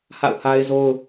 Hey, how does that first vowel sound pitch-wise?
falling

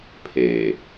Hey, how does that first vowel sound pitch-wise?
low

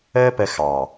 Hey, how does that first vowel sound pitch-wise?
high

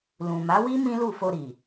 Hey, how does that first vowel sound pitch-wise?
low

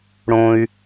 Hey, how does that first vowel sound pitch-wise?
low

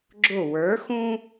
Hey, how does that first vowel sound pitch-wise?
falling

